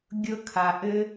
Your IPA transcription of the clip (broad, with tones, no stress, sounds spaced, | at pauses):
ɡʲ ɤ˦ kʰ a˧ ʔ ɘ˦